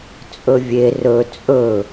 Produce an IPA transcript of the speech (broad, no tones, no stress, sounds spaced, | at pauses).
t͡sʼ ɵ vʲ e r ɵ t͡sʼ ɵ